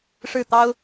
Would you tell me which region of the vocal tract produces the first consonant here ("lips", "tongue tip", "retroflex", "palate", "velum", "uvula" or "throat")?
retroflex